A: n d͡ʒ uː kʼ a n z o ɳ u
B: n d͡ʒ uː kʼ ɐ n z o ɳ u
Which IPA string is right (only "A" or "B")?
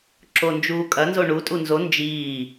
B